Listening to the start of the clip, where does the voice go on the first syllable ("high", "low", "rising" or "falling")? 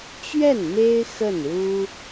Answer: falling